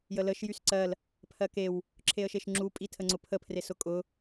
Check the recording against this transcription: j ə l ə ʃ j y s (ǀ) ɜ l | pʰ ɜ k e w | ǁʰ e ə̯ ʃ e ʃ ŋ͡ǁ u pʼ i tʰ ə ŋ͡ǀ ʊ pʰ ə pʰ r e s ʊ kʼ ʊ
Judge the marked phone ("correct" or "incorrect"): correct